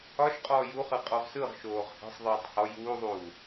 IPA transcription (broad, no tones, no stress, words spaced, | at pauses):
ɒʃqʼɔː juχɯ qʼɔʁsɯʁʃoːʁ hɛ̤sˤðˤɯːtˤ hɔ juːðˤuː